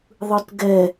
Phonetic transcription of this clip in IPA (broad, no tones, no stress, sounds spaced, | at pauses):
ðˤ ɯ t ɡ ɛ